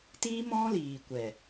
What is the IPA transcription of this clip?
t iː˦ m ɔ̃˦ l iː˨ kʷ ɛ˨

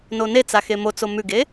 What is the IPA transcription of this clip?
n o n e t͡s a x e m o t͡s o m ʉ ɡ e

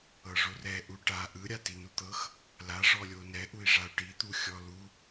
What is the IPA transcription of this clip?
ɤ ʐ o r ɛ ʔ u ʈ a ʔ ɯ ɾʲ a t i n u t̪ ɤ x | l a ʐ ɔ lʲ o n ɛ ʔ u i̯ ʐ a u̯ ʈ i t̪ u xʲ ɔ l u

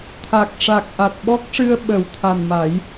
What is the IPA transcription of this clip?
t̪ʰ a˨˩ k̚ ʂ a˨˩ k̚ ʔ a˨˩ t̚ ɓ ɔ˦˥ k̚ ʂ ɨ˧ ə̯ ɓ ə˨˩˦ w t̪ʰ a˨˩ n m a˨˩˦ j

